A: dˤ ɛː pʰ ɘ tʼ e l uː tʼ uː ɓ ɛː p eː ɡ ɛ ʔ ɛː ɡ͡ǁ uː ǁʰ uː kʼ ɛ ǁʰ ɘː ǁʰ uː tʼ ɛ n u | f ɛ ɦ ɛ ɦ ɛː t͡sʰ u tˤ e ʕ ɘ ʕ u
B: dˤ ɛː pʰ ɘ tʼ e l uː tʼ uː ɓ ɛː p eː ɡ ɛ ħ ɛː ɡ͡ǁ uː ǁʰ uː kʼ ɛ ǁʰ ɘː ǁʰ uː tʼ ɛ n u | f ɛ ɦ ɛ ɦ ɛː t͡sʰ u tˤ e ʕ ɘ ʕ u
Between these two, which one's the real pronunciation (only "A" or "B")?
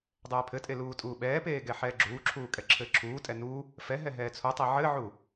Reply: B